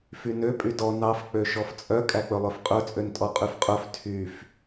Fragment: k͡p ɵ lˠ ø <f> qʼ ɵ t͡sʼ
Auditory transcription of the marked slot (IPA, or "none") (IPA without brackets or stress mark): f